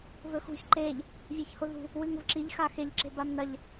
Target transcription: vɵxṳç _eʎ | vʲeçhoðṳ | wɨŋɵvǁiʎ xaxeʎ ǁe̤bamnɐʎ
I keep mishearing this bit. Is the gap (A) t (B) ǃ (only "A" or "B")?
B